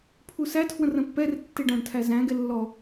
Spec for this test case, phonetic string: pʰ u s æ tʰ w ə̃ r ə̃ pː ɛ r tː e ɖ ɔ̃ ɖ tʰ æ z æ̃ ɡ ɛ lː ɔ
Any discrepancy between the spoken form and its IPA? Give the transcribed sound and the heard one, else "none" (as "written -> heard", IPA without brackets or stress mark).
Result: none